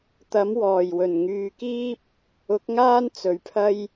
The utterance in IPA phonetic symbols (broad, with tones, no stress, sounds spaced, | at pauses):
t̪ ɐ˨˥ m w ɔː˨˩ j w ɵ˨˩ n ŋ yː˨˧ k iː˥ p̚ | ʊ˨˥ k̚ ŋ aː˥ n t͡s ɵ˨ ɥ pʰ ɐ˥ j